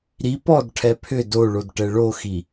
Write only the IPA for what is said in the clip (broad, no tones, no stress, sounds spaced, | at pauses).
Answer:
ɾ i p ɔ d ʈʰ ɛ pʰ ʏ d o ɭ o d ʈ ɛ ɭ o x i